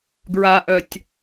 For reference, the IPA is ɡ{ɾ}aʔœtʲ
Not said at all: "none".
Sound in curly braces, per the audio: ɹ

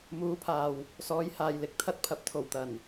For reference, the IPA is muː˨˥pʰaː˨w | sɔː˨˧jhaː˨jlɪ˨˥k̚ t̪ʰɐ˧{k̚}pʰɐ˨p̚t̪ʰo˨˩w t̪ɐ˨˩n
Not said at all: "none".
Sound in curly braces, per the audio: t̚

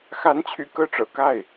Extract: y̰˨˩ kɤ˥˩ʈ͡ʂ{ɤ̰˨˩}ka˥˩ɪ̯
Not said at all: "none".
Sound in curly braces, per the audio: ɤ̰˨˩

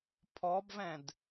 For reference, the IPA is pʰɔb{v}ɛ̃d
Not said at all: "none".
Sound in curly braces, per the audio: v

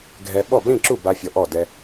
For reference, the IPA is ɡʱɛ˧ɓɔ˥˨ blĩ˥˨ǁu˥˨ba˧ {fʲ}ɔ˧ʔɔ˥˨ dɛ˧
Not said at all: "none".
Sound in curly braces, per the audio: fʲ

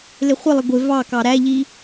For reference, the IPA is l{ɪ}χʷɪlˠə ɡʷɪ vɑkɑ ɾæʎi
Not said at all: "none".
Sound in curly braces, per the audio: ɪ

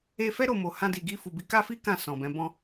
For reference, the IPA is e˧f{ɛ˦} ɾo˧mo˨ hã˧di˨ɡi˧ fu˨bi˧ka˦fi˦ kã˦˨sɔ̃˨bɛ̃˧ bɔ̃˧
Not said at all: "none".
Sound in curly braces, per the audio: ɛ˦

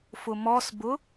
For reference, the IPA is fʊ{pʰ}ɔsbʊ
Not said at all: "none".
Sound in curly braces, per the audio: m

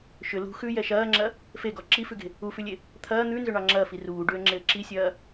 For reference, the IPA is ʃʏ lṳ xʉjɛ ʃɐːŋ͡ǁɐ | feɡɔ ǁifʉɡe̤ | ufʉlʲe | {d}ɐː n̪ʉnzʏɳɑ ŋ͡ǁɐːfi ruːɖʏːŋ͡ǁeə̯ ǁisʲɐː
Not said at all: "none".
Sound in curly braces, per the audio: t̪ʰ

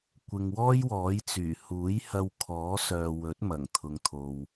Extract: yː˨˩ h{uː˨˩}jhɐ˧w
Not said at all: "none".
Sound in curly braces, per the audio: uː˨˥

